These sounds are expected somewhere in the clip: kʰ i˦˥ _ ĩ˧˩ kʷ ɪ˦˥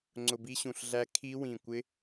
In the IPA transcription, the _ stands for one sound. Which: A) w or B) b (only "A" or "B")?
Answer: A